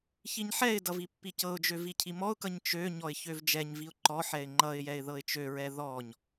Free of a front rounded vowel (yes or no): no